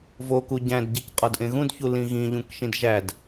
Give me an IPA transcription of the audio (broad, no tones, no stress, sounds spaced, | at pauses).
v o k u ɟ æ̃ d ɟ i c qʼ ɒ d ʔ ẽ ɣ ũ d ç u l ĩ ɣ ĩ ʎ ũ k ʃ ĩ d ʒ æ d